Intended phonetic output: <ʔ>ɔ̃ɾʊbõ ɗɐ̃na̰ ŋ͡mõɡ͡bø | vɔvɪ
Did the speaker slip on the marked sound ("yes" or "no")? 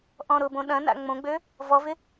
no